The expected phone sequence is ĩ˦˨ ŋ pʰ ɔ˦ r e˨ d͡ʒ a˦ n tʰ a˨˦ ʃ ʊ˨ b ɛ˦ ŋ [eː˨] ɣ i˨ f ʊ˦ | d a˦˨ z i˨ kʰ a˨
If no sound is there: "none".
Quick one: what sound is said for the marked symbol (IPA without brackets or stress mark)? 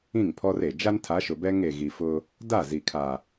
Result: e˨